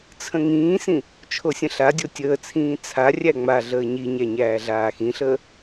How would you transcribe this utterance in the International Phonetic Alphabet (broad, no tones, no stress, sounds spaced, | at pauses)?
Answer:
t͡sʰ ə̃ ŋ ĩː s ĩ | t͡ʃʰ o sʲ ə̃ ɬ a dʲ o tʲ əː t͡sʰ ĩː t͡sʰ a rʲ æ ŋ͡m a ɮ əː ɲ i ɲ æ ɲ æː ɮ aː x ĩ ɬ əː